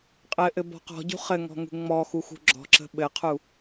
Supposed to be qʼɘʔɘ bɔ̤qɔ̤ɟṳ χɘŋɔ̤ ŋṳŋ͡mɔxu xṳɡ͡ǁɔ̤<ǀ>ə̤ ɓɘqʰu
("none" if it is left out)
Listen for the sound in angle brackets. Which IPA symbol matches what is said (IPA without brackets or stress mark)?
ǁ